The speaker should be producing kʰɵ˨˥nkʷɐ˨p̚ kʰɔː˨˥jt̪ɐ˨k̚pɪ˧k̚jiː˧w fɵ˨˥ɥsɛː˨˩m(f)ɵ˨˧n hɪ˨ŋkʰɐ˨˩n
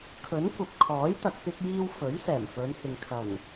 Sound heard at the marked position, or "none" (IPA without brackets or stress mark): f